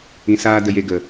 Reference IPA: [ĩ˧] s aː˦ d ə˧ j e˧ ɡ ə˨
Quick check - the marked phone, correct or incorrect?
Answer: correct